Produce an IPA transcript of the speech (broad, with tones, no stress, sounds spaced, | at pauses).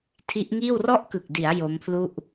tʰ i˦˥ ʔ ŋ iː˥˩ w r ɔ˥˩ ʔ k ɯ˨˩ k̚ d i˩˦ a̯ j o˦˥ m pʰ l u˥˩ ʔ